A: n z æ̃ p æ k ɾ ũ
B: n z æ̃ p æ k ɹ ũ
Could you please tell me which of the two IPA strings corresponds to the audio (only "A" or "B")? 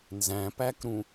A